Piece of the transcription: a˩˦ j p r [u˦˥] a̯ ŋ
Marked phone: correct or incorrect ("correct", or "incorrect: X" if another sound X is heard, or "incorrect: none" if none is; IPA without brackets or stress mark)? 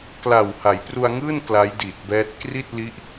incorrect: u˧